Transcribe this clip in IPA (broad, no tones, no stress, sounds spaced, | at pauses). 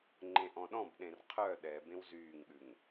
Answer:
ŋ͡ǃ ẽ ʔ ɔ̃ ɗ ɔ̃ b ɗ ẽ r qʰ œ ɗ ɛ b ẽ w z yː ŋ ɠ ʉ ŋ